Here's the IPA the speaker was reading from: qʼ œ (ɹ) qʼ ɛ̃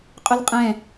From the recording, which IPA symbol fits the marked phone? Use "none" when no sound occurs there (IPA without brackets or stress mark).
l